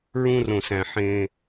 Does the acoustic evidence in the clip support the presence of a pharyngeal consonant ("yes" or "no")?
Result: yes